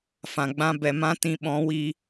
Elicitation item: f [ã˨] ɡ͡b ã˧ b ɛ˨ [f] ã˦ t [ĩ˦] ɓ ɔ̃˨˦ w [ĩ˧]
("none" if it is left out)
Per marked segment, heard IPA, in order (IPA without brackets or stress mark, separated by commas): ã˨, m, ĩ˧, i˧